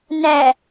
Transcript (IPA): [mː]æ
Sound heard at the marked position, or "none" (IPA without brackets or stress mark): n